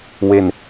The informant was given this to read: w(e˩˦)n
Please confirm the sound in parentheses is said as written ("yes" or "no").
no